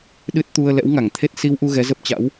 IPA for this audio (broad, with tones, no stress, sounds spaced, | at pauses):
ɗ ɨ˦˥ t̚ t̪ u˧ ə̯ l ɛ̰˧˥ w ŋ a˧˩ ŋ t̪ʰ e˦˥ t̚ s i˧ w ʔ u˧ ɣ ɛ˨˦ z ə˦˥ p̚ t͡ɕ a̰˧˥ w